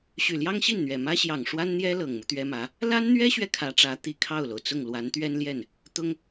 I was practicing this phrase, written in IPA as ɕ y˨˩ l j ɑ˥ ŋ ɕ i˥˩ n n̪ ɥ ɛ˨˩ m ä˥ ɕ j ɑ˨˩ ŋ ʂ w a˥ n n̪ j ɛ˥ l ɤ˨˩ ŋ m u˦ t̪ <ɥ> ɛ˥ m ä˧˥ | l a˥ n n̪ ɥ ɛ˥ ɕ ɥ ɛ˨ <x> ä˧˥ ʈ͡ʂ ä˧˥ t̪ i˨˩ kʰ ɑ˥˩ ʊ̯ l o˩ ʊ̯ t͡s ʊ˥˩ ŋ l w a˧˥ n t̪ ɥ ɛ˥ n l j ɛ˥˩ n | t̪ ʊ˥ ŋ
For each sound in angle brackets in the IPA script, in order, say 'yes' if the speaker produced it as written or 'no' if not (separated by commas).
yes, no